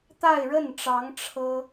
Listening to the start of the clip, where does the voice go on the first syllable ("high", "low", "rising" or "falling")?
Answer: falling